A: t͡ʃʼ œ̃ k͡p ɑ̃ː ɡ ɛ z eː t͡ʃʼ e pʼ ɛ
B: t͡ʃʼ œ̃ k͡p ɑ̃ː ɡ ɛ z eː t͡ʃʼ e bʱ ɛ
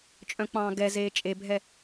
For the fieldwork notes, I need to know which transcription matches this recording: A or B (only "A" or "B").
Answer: B